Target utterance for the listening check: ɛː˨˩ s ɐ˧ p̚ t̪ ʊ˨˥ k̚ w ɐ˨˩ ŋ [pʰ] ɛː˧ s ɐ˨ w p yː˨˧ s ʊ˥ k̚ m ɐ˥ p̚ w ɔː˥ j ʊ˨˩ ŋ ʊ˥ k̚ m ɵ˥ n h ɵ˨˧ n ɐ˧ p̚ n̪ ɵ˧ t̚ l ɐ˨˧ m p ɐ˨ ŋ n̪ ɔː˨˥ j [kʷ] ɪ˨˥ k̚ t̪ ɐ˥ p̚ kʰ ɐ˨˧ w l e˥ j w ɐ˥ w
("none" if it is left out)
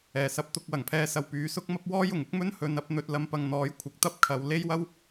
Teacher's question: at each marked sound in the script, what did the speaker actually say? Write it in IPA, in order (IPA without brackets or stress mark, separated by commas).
pʰ, kʷʰ